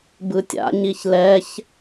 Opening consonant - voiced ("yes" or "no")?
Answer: yes